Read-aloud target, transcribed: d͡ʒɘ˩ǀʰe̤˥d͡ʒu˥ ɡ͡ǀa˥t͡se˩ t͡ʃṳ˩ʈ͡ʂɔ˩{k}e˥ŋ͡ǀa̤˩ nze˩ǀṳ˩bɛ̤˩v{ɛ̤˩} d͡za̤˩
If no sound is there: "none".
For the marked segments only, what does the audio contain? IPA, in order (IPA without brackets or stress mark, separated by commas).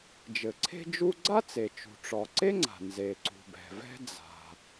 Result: ǀ, ɛ̤˥